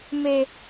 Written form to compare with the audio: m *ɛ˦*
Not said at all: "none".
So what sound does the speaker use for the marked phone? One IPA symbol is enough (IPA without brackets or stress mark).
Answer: e˦